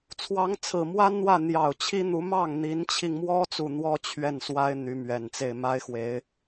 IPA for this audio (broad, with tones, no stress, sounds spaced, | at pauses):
t͡sʰ w ɑ˧˥ ŋ t͡sʰ ɹ̩˨˩ m w a˥ n n̪ w ä˥˩ n̪ j ɑ˨˩ ʊ̯ t͡ɕʰ i˥ n̪ u˧˥ m ɑ˥˩ ŋ n̪ i˧˥ n t͡ɕʰ i˧ ŋ m w ɔ˥ t͡s u˥˩ n̪ w ɔ˥ t͡ɕʰ ɥ ɛ˥˩ n s w a˥ ɪ̯ n̪ y˧˥ m ɥ ɛ˨˩ n t͡s e˥˩ ɪ̯ m a˥ ɪ̯ x w e˧˥ ɪ̯